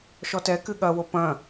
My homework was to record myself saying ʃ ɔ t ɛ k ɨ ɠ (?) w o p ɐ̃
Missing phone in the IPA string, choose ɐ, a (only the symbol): ɐ